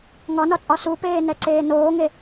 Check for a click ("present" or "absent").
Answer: present